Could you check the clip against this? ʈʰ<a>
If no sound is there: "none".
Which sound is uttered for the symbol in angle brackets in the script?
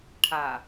a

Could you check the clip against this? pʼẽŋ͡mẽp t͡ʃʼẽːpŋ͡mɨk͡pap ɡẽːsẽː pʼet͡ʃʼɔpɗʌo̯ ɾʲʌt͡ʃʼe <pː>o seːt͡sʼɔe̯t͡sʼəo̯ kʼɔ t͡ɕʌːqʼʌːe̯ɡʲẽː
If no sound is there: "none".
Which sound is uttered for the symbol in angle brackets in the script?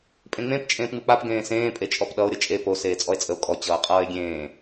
p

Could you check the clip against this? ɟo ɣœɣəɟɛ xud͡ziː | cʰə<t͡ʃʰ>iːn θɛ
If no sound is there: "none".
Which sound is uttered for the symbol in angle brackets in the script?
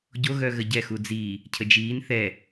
d͡ʒ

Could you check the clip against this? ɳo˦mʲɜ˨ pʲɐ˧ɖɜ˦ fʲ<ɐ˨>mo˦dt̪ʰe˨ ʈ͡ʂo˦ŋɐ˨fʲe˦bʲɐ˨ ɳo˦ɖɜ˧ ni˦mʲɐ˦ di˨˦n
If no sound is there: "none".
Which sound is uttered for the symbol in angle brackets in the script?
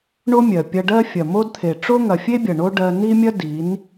ɐ˨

